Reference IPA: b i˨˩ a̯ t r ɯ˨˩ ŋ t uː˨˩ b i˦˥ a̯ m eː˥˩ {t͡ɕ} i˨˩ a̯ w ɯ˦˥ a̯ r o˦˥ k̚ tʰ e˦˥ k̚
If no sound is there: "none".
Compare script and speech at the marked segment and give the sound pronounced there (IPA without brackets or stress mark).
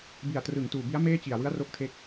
t͡ɕ